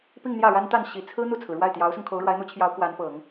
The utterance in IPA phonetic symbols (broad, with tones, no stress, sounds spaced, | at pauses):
p i˥˧ ŋ n̪ j ä˥˩ ɻ a˥ n t̪ a˥˩ n ɕ i˨˩ t͡sʰ ɹ̩˥ n̪ u˥˩ t͡sʰ ɹ̩˩ ɻ w a˥˩ ɪ̯ t̪ j ɑ˧˥ ʊ̯ s ʊ˧ ŋ kʰ o˧˥ ʊ̯ ɻ w a˧˥ ɪ̯ n̪ u˧˥ t͡ɕʰ j ɑ˧˥ ʊ̯ k w a˧˥ n p ɤ˨˩˦ ŋ